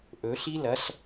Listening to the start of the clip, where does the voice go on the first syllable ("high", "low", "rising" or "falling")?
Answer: rising